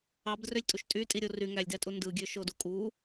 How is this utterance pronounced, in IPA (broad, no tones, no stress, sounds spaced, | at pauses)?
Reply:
ɑ b d r ø lʲ tʼ u ʃ tʼ y tʼ i ɾʲ o r y ŋ æ lʲ d æ tʼ u n d ɯ ɡʲ ø ʃ o d u kʼ u